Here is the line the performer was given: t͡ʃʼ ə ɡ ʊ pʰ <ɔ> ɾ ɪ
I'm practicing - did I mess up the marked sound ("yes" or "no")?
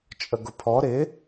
no